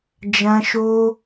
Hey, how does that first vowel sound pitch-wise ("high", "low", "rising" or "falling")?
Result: high